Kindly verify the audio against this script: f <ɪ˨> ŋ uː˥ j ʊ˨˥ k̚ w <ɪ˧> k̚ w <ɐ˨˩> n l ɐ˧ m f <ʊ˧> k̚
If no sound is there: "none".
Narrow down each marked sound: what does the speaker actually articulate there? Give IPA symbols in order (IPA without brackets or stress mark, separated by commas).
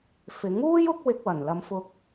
ɪ˨˥, ɪ˧, ɐ˨˩, ʊ˧